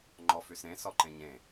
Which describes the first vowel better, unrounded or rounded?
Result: rounded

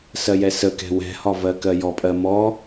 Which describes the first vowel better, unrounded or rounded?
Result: unrounded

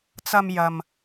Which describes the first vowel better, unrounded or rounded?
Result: unrounded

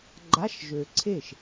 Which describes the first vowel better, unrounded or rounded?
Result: unrounded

